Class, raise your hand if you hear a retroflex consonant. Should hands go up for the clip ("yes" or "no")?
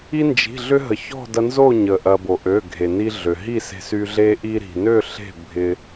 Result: no